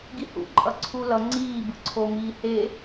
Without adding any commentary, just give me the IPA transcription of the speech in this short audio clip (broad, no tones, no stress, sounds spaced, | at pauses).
ɡ i h ṵ ǃʼ ʌ ǀʰ u l ʌ ŋ͡ǀ iː b ɯ ǀʰ o m iː h e